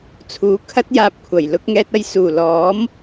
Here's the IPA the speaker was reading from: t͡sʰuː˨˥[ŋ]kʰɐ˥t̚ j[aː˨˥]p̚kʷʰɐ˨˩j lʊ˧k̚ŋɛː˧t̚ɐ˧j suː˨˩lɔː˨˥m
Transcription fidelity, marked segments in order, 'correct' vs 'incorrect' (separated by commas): incorrect, incorrect